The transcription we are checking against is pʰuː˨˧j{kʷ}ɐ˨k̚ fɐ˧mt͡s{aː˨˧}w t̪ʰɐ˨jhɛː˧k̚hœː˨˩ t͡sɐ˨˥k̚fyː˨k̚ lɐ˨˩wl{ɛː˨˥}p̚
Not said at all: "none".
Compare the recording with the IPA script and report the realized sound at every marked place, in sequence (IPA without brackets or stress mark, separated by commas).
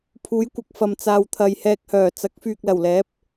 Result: kʷ, aː˧, ɛː˨˥